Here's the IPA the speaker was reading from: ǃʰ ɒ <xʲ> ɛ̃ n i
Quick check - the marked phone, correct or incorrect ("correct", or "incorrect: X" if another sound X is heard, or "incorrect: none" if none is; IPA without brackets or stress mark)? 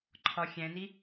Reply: correct